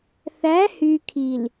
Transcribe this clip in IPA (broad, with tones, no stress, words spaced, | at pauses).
θæ˨˦hy˨kʰi˨l